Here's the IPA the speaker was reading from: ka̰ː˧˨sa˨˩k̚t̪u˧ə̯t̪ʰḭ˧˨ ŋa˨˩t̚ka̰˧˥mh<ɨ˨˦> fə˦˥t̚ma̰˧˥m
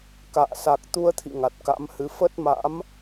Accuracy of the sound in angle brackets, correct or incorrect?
correct